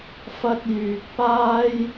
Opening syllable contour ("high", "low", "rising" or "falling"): high